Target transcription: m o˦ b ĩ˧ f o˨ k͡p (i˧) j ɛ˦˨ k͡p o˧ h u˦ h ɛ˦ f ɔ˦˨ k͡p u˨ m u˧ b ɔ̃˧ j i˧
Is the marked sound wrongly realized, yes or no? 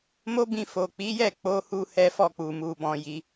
yes